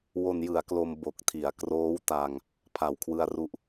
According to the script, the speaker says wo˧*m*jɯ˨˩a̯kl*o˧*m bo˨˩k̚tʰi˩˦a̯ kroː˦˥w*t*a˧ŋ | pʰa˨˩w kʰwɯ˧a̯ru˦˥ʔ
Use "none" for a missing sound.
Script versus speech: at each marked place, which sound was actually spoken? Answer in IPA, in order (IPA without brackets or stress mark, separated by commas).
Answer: n, o˧, t